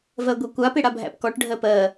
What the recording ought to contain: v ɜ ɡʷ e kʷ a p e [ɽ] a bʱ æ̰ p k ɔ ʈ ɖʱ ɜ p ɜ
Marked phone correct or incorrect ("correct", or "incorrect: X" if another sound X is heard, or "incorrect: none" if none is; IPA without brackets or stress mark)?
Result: correct